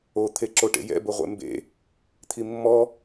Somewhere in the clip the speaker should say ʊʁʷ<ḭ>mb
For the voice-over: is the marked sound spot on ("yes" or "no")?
no